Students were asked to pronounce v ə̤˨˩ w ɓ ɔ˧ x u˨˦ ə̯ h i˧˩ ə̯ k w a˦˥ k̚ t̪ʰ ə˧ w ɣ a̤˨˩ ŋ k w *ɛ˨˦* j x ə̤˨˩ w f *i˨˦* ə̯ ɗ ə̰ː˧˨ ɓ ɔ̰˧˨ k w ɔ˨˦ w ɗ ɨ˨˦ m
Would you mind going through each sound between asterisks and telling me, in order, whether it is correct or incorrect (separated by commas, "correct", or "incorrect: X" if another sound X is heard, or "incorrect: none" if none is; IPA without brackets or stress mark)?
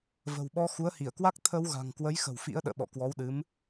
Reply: incorrect: ə˨˦, incorrect: ḭ˧˥